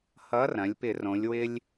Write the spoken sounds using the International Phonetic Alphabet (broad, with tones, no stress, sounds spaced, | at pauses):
h ʌ˨˥ r ɐ̃˩˧ lʲ p ɪ˧˩˧ r õ˩˧ lʲ w ɪ˧ lʲ